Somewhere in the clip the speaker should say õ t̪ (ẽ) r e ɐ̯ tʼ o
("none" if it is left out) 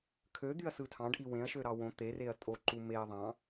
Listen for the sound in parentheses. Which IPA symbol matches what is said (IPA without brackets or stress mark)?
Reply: e